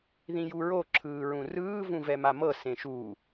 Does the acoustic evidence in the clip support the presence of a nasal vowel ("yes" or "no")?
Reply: yes